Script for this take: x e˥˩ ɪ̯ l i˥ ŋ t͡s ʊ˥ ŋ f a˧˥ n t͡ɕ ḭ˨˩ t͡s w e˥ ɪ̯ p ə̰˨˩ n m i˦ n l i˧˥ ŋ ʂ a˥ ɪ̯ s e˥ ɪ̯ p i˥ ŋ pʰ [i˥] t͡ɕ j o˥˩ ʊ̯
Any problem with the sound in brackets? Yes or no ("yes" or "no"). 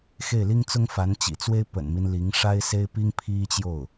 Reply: no